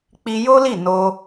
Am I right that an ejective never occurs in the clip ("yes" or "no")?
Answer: yes